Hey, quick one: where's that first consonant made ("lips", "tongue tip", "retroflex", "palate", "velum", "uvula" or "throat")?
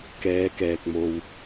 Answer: velum